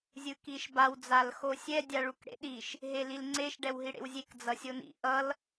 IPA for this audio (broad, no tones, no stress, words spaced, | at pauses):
zʲɯkiʃbaw d͡zalxosʲɛ dʲaɭukɽḛɗiʃ | ɦelilŋ͡ǀeʃ ɖɛwɦiɽḛwzʲek d͡zʌsʲonḭ ʔʌl